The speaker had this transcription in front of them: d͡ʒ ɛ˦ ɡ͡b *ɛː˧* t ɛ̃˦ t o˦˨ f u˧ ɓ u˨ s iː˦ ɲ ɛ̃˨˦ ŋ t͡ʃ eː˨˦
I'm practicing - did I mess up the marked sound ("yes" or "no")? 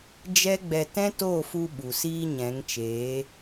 yes